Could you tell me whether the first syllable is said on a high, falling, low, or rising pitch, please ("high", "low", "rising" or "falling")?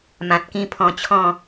low